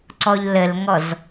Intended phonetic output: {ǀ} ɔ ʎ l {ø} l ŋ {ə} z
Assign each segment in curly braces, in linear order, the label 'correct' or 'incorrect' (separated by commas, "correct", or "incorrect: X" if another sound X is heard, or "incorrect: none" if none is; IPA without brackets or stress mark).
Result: correct, incorrect: ə, incorrect: ɔ